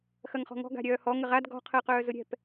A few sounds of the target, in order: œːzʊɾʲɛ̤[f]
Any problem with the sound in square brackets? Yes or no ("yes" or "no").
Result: yes